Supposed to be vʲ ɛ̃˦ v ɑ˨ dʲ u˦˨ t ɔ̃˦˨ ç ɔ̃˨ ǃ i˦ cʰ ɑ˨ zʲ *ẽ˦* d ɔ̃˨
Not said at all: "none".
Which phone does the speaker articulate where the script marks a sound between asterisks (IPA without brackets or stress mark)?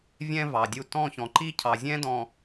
ɛ̃˦